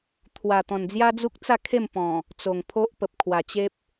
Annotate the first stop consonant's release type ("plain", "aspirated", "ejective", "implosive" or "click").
aspirated